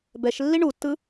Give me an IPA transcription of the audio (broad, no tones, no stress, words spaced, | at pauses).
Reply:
bɛʃlːi ɳutːɯ